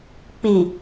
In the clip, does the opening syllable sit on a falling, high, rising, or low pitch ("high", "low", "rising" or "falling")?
low